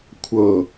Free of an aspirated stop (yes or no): no